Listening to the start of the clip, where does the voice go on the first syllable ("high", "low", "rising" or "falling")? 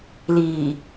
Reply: low